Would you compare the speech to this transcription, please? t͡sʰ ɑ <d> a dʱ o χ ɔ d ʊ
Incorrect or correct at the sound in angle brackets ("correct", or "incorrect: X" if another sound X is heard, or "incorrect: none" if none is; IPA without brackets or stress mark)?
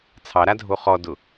incorrect: ɾ